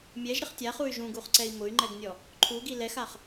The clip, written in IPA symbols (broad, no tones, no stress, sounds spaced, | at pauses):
mʲ ɛ ʒ ɾ ɪ χ tʲ a χ u y̯ ʒ ũ ɡ u χ ǀ ɛ i̯ m ʊ y̯ ŋ͡ǃ ɛ ɡ nʲ ɔ | ǃʰ u ɡ i l ɛ x a χ